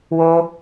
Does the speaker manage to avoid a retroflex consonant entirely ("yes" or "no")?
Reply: yes